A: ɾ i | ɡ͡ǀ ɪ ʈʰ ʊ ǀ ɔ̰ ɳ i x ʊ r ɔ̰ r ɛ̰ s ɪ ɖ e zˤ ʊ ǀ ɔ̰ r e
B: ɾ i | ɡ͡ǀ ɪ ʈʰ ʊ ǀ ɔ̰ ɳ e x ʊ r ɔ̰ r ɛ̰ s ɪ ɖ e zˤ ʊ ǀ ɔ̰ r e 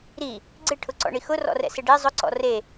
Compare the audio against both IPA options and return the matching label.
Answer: A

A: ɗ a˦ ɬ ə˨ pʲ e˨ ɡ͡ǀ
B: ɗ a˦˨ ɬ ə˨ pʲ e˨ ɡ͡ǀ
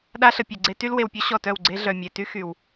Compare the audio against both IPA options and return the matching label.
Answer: A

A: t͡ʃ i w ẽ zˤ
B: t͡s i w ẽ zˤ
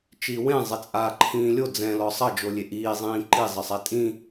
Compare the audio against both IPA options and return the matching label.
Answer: A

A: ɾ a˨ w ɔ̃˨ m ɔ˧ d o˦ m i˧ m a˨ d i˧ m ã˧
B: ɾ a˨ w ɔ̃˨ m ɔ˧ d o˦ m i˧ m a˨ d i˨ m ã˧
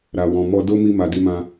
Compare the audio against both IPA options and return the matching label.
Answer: A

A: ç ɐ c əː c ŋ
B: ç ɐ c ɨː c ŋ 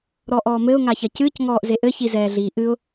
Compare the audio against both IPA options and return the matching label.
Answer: B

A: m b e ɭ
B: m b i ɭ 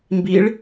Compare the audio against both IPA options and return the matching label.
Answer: B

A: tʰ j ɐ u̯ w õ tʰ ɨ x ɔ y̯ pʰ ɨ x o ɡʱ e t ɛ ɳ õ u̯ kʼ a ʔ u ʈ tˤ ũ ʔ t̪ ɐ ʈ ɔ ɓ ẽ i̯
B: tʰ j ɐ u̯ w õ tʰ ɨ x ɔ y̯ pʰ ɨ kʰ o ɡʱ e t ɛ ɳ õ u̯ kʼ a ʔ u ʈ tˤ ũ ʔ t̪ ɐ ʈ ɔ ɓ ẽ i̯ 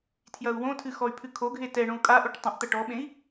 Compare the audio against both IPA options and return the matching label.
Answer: B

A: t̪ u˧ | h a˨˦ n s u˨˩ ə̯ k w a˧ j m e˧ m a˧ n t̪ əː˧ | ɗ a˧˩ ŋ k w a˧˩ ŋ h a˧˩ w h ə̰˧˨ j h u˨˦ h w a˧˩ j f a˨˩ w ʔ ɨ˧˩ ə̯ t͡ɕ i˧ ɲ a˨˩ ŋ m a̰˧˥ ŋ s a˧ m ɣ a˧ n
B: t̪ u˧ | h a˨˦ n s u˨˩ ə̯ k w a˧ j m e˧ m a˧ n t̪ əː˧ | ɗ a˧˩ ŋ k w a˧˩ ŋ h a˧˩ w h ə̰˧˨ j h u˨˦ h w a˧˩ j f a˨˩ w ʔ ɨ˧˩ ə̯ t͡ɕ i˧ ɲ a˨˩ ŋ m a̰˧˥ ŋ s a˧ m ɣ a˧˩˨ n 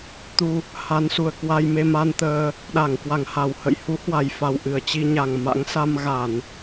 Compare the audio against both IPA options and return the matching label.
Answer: B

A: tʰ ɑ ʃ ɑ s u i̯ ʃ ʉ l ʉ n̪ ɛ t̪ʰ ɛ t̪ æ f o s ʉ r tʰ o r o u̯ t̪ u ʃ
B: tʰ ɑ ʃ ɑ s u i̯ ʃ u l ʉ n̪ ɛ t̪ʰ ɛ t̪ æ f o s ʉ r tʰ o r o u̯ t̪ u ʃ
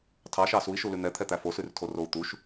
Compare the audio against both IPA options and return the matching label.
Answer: B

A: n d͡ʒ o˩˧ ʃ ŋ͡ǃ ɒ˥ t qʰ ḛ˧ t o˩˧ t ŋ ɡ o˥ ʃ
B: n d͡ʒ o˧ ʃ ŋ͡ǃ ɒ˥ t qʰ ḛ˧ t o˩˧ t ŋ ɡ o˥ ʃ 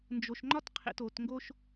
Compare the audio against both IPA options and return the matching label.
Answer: B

